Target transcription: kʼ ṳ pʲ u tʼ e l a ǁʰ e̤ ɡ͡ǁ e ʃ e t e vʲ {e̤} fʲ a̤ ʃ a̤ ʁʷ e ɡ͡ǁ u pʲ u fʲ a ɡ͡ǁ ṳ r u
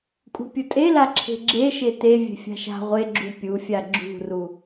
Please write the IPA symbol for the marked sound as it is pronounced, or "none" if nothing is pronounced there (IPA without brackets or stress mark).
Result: e̤